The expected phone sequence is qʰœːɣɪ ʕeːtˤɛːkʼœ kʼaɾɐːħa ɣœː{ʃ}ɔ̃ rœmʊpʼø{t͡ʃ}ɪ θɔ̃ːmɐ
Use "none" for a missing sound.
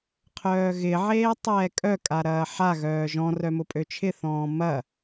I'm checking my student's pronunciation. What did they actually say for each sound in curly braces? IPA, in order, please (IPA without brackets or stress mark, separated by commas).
ʒ, t͡ʃʰ